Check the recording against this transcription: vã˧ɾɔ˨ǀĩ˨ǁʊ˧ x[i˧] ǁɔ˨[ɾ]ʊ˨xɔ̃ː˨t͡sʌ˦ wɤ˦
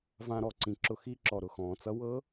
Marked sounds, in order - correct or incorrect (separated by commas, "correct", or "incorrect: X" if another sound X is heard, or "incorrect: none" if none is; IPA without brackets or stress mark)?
correct, correct